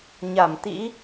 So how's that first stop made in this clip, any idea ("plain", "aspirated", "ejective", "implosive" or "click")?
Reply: plain